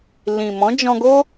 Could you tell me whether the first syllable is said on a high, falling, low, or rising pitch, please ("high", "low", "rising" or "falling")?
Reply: low